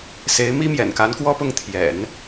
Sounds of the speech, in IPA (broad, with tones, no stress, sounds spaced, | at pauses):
s e˧˥ ɪ̯ m i˥ m j ɛ̰˨˩ n k a˧˥ n k w ɔ˥ p ʊ˥˩ ŋ t̪ʰ j ɛ̰˨˩˦ n